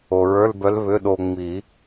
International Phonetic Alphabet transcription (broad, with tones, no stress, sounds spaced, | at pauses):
o˩ ɹ ə˞˧˥˧ l b œ˧˥ l β ʏ˧˥˧ ɗ o˧ ŋ͡m i˨˩˦